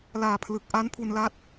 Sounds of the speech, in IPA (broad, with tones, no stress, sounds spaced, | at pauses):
l aː˨˩ pʰ l ɯ˨˩ k̚ ʔ a˦˥ n pʰ u˧ n l a˦˥ t̚